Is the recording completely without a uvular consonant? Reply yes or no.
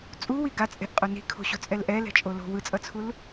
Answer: no